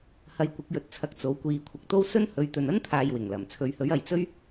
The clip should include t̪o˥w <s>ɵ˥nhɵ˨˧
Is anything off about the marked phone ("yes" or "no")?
no